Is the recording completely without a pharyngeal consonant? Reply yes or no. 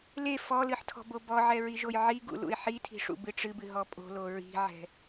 no